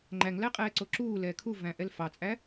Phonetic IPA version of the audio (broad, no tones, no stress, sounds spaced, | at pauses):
ŋ͡ǃ æ ŋ l æ qʼ ɛː ǀ o ǁ uː l ɛː kʰ u v æ̃ ʔ ɛ l f ɑ t͡sʼ æ